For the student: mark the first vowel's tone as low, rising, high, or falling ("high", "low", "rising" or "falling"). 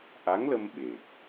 rising